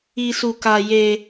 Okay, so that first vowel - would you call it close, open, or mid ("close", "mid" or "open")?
close